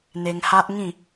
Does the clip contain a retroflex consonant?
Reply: no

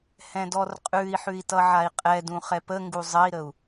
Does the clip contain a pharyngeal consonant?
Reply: yes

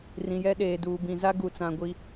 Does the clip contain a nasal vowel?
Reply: yes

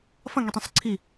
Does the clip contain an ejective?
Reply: no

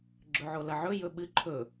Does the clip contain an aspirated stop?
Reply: yes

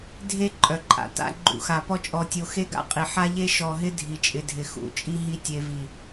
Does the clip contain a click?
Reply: yes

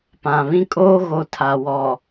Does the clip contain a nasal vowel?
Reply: yes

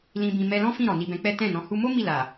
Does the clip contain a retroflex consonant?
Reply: no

